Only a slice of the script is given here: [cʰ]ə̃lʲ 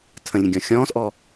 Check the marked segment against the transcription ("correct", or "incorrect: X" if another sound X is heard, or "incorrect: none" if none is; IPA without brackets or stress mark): incorrect: tʰ